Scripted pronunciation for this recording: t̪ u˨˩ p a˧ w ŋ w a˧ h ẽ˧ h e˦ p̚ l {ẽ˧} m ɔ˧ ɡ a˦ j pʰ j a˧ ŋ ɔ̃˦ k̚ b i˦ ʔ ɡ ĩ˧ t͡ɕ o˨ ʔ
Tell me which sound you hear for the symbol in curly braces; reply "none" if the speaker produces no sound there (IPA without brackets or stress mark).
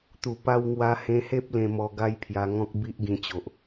ẽ˧